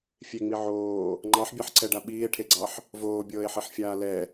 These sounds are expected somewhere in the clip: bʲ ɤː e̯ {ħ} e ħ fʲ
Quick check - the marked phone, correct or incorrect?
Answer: correct